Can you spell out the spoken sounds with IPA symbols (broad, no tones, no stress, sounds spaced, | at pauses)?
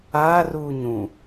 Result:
aː r uː ɲ ũ